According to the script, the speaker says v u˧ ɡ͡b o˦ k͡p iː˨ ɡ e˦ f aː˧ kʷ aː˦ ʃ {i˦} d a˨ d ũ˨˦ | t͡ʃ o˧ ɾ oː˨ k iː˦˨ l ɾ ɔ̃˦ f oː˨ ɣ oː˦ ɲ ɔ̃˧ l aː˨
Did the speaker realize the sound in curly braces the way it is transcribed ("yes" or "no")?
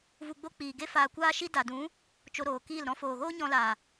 yes